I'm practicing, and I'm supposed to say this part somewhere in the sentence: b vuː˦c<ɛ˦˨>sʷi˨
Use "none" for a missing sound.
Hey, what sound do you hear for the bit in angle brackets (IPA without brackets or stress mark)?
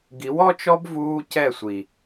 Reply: ɛ˦˨